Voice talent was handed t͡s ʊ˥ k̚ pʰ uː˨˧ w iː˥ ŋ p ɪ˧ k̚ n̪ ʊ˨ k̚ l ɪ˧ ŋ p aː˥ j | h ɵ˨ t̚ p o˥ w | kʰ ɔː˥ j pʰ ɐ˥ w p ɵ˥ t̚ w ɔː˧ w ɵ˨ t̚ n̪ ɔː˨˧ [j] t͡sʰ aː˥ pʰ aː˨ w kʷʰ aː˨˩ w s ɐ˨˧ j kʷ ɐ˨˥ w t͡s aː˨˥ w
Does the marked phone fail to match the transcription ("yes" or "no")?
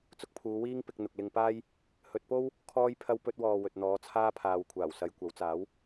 yes